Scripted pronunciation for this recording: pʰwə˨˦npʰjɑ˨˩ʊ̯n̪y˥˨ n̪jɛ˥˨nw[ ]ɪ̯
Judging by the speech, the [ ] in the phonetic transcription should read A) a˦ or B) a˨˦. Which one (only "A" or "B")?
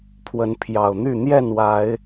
B